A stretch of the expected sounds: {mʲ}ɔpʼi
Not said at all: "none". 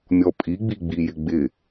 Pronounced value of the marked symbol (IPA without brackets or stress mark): mʲ